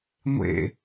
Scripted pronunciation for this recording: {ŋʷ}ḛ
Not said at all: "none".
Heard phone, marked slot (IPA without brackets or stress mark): ŋʷ